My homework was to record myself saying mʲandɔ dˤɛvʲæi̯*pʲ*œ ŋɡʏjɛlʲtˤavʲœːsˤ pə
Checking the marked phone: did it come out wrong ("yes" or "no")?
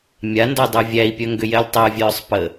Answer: no